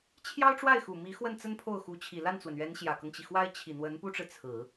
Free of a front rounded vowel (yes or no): yes